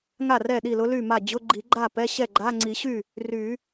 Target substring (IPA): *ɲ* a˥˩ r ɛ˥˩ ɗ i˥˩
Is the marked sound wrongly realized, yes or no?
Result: yes